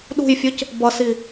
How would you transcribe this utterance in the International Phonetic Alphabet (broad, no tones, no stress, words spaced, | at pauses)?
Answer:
ɗṳjfʲɯc | bʌsi